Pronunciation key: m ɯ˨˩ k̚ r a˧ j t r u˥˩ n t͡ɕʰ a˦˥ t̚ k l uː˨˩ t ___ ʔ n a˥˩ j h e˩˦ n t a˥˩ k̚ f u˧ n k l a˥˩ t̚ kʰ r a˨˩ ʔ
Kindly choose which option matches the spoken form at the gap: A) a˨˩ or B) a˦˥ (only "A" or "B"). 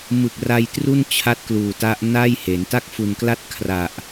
B